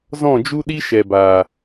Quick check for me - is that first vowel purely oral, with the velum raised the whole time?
no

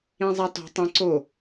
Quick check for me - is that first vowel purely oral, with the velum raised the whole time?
no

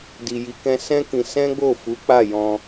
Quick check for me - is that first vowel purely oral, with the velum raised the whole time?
yes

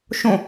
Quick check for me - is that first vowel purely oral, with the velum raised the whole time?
no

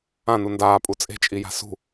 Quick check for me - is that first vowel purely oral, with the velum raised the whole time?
no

